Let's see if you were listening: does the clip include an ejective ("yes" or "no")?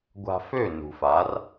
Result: no